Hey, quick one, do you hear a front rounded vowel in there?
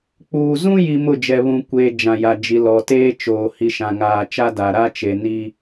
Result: no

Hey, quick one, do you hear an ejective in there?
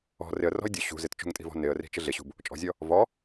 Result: yes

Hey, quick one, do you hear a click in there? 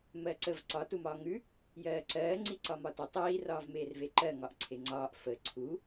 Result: yes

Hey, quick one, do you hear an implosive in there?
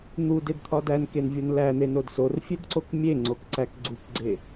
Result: no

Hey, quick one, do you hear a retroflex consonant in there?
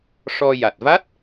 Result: yes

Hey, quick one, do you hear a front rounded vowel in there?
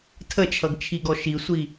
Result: no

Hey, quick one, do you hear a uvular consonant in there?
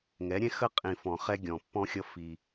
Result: yes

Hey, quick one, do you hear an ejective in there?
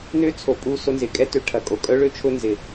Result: yes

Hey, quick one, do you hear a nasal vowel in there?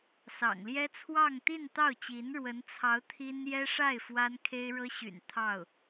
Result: no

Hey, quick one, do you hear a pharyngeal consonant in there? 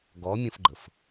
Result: no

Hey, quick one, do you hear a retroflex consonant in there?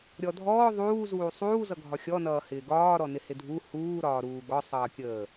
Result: no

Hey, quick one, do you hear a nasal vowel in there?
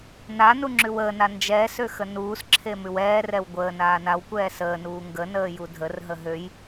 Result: no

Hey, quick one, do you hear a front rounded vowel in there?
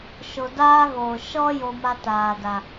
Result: no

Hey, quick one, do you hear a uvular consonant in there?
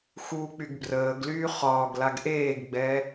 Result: yes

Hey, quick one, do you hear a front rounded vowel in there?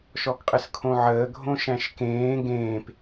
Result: no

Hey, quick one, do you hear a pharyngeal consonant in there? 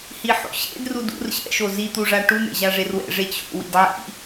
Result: yes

